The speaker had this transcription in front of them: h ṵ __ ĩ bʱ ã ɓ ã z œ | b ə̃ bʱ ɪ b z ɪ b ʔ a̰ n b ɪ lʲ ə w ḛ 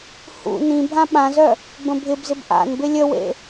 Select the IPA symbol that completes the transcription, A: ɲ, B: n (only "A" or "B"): B